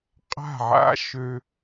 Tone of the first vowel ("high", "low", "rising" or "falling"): falling